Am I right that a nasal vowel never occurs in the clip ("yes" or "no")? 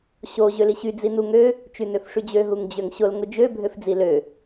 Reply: yes